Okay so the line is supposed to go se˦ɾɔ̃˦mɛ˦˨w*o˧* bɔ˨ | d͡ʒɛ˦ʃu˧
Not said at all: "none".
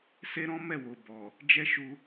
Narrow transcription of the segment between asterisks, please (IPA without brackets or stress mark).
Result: o˨